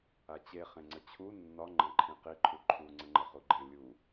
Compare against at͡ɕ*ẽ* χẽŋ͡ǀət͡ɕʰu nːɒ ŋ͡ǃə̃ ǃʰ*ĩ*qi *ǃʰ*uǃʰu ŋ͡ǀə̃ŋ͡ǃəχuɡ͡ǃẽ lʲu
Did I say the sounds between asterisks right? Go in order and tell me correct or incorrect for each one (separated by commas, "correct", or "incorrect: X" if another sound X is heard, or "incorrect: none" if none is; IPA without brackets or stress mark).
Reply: incorrect: e, correct, correct